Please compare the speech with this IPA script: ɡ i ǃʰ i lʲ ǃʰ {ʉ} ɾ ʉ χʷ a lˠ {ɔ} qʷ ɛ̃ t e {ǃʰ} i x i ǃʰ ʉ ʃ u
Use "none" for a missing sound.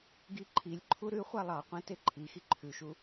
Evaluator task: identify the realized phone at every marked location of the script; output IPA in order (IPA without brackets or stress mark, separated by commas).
u, ɑ, ǃʰ